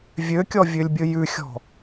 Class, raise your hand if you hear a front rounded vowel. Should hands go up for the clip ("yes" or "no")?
yes